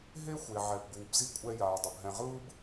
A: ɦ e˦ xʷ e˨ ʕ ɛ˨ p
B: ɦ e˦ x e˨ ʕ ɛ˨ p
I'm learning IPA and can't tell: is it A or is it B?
A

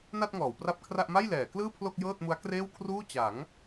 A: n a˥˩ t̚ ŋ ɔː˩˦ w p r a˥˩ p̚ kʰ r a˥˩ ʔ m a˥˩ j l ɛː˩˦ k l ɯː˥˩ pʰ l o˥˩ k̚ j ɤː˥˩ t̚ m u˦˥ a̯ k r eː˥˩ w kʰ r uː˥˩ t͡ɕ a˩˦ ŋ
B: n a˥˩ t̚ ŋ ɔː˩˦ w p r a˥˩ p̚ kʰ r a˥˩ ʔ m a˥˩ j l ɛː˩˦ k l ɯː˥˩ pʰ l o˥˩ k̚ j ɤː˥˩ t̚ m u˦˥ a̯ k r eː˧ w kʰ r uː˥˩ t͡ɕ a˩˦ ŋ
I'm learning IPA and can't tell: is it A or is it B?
A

